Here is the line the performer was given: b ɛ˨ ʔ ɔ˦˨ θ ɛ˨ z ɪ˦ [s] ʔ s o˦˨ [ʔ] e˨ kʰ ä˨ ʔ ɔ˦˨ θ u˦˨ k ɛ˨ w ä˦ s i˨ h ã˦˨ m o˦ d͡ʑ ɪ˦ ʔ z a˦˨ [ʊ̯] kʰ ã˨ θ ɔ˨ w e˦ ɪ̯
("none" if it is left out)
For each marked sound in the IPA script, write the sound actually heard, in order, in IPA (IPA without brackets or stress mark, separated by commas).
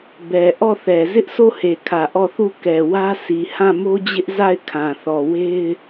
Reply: none, h, ɪ̯